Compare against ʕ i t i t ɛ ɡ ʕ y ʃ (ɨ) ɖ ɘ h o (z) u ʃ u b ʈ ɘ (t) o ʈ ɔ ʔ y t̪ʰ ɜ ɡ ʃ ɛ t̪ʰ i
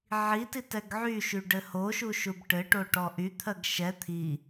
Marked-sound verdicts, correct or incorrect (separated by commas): incorrect, incorrect, incorrect